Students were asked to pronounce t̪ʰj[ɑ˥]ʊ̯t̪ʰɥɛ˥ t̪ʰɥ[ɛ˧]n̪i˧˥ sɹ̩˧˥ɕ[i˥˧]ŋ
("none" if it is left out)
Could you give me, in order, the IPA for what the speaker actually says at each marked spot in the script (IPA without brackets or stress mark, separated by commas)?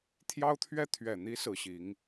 ɑ˥, ɛ˨˩, i˧˥